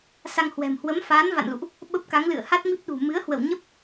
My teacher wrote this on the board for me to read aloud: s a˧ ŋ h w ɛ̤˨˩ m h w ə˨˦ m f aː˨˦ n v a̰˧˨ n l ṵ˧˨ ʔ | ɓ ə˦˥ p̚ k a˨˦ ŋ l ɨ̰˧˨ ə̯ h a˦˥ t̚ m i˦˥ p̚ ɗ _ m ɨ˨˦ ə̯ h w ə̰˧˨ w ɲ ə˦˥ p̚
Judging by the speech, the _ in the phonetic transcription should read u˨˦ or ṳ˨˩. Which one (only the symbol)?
ṳ˨˩